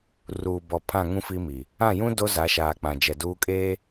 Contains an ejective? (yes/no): yes